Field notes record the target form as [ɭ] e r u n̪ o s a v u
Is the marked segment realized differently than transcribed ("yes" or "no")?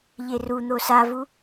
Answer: yes